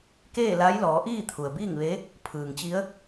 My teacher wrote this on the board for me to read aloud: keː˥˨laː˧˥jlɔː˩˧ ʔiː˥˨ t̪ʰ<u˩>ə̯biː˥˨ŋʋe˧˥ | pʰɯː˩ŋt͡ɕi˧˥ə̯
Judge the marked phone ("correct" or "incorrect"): correct